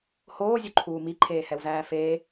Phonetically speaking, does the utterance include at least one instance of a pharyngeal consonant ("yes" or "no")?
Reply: no